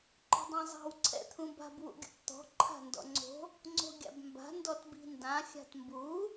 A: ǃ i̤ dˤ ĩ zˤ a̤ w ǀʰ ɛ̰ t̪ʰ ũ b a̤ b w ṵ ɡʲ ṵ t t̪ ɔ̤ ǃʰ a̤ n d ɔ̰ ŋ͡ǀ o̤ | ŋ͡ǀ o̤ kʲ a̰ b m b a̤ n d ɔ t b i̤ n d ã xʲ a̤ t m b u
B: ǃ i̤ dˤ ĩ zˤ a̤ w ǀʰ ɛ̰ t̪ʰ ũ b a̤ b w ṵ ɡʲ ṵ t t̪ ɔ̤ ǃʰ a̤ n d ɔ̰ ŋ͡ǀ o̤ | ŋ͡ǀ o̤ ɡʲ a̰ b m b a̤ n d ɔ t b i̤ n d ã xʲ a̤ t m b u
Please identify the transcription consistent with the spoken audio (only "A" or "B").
B